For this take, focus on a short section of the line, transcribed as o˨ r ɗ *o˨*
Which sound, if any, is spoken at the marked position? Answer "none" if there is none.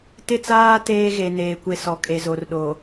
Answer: o˨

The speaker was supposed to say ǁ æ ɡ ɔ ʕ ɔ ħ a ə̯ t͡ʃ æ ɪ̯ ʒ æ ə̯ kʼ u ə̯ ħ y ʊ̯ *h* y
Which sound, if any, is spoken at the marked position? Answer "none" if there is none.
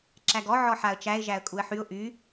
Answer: ʔ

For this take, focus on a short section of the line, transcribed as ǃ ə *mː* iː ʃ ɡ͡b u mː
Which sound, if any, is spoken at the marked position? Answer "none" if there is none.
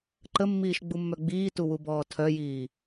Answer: mː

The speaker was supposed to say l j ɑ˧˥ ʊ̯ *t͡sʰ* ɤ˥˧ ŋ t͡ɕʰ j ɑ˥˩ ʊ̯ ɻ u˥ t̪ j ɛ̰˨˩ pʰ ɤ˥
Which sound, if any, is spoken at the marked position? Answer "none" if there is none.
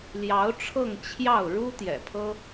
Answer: ʈ͡ʂʰ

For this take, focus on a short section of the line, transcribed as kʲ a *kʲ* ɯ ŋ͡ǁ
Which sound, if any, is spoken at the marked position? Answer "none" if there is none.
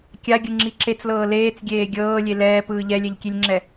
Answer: ɡʲ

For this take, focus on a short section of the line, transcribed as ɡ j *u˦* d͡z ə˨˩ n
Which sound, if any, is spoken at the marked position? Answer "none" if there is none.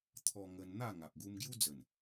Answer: u˦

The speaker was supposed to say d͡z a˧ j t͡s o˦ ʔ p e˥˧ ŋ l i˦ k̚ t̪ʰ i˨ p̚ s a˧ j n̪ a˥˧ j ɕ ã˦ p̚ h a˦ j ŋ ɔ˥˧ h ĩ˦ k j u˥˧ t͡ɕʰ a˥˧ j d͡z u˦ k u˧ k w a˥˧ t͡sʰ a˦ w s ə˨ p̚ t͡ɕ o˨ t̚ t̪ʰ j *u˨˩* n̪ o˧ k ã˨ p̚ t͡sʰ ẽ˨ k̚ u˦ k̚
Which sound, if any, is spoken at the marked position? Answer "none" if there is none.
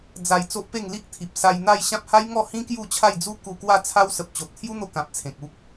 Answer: u˦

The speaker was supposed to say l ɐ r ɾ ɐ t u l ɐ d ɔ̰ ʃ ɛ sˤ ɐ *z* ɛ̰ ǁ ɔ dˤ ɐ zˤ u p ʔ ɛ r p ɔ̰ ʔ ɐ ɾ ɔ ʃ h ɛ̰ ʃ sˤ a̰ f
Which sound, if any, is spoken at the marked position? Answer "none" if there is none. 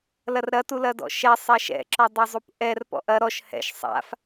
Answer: ʃ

